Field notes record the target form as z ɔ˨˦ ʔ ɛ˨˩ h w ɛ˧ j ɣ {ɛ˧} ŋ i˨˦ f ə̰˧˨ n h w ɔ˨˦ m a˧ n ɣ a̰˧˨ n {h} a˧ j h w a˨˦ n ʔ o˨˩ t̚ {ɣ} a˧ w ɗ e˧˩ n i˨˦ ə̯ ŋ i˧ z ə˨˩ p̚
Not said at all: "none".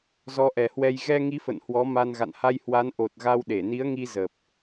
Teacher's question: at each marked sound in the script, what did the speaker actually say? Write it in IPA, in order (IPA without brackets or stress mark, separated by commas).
ɛ˧, h, ɣ